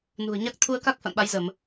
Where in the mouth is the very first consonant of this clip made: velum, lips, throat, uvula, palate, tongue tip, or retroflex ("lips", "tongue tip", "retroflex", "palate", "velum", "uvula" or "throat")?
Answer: tongue tip